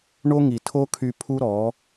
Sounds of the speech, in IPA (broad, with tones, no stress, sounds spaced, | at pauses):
ɳ o˦ ŋ i˨ tʰ o˦ kʰ y˧ pʰ u˦ ɾ ɔ˨˦